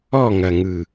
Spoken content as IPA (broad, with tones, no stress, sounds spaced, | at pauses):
ɔ˦˨ ŋ ɐ˨ ŋ ɯ˨